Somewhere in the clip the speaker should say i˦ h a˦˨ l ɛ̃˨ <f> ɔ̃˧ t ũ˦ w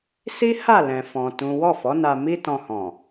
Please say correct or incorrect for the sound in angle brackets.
correct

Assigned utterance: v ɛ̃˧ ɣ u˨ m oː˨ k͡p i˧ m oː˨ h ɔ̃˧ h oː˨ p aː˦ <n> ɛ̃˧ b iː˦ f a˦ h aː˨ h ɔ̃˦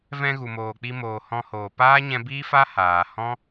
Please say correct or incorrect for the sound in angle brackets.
incorrect: ɲ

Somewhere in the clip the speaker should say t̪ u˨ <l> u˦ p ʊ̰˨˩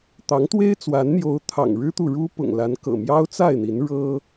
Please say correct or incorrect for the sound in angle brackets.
incorrect: ɻ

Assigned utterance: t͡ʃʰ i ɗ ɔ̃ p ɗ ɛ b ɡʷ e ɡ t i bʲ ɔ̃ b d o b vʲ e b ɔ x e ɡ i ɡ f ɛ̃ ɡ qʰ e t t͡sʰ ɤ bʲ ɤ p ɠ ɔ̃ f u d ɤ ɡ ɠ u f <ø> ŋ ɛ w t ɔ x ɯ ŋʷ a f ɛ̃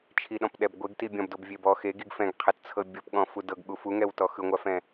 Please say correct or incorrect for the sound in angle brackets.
incorrect: u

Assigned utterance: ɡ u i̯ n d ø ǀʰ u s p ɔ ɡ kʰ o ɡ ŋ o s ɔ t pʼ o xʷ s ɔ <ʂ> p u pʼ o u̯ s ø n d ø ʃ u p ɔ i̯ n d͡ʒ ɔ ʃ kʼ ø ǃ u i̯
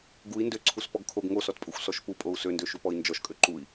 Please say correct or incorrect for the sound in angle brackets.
incorrect: ʃ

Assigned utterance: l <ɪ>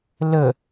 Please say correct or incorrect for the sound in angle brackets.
incorrect: ə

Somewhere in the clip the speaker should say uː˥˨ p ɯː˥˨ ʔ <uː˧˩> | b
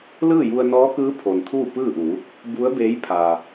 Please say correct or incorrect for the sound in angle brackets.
incorrect: uː˩˧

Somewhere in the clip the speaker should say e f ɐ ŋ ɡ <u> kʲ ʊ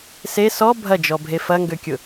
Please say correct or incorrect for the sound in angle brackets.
incorrect: ø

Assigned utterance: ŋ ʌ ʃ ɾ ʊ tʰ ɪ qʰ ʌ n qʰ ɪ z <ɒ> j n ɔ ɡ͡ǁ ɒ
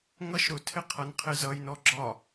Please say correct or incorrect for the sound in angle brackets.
incorrect: ʌ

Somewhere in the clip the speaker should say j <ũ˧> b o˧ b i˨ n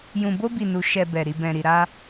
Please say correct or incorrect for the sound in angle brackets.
incorrect: ũ˨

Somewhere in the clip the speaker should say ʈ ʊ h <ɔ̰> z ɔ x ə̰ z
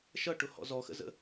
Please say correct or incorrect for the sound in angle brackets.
correct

